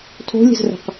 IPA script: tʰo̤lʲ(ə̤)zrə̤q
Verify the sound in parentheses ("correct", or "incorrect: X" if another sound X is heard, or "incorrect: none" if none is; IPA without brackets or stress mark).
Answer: correct